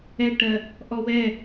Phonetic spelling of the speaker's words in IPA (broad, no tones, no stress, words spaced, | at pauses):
ɛʈɜ | ʔɔwɛ